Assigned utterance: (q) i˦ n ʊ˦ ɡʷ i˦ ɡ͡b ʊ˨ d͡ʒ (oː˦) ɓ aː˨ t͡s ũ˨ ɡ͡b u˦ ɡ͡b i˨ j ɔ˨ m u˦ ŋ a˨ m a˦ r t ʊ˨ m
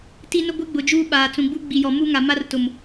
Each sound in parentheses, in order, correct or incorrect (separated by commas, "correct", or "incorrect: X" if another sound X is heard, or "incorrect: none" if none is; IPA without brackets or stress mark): incorrect: t, incorrect: uː˦